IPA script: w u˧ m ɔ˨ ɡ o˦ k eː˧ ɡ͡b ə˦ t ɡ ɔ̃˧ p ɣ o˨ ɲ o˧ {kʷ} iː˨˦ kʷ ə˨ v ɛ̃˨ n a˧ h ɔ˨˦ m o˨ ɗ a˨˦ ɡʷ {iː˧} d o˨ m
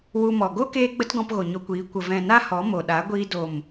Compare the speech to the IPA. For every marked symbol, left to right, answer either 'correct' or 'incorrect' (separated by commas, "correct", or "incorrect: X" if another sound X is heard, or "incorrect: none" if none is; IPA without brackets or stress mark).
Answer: correct, correct